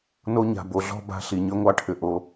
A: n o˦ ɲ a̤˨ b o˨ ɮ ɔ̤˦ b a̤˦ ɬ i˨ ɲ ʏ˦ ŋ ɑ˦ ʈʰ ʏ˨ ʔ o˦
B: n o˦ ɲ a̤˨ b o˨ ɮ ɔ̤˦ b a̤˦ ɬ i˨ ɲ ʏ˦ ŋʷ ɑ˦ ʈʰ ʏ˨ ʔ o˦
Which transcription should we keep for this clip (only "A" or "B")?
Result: B